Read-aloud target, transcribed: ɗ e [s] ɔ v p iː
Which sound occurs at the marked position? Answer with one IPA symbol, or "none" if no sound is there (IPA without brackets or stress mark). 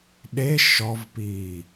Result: ʃ